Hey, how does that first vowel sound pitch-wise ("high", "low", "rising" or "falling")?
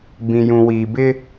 low